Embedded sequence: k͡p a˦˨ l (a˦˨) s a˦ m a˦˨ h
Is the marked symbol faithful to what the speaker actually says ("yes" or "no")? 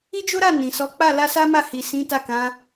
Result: no